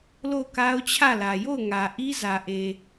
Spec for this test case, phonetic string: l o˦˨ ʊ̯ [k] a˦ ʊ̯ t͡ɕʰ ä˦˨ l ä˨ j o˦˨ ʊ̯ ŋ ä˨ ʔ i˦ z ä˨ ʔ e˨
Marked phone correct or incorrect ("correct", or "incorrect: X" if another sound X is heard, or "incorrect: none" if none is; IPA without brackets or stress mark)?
correct